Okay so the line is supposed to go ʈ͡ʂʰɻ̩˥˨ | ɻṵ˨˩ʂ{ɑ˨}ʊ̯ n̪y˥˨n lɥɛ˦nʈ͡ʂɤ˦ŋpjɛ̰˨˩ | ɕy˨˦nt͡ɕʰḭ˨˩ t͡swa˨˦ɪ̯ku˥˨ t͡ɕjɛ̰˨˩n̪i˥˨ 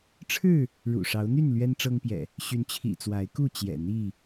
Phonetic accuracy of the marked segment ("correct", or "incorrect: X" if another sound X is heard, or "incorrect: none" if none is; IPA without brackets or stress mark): incorrect: ɑ˨˦